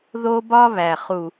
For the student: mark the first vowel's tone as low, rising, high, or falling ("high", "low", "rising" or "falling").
high